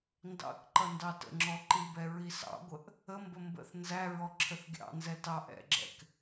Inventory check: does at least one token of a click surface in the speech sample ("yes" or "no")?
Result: yes